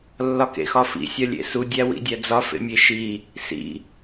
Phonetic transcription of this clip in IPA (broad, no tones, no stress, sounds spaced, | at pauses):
lː ɒ k ḛ x ɒ f ḭ sʲ ɒ lʲ ḛ s u dʲ æ w ḭ dʲ æ d͡z ɒ f ḛ mʲ e ʃ i | s ḭ